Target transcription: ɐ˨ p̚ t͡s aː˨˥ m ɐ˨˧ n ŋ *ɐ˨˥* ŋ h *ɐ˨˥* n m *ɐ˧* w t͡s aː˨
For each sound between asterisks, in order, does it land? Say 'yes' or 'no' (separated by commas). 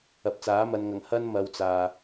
no, no, yes